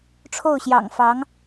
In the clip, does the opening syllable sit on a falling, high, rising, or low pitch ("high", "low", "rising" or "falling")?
falling